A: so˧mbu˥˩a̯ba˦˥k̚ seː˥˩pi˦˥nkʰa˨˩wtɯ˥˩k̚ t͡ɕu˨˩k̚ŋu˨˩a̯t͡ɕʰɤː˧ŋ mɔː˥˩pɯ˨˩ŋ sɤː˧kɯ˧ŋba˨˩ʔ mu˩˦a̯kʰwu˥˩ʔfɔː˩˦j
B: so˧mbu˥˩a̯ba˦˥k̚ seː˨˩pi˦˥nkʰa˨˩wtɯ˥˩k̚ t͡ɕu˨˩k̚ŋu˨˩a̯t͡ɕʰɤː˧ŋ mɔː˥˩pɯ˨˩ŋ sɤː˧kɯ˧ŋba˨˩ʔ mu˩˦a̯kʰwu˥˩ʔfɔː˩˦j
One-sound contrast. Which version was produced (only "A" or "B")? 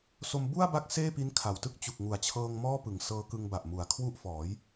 A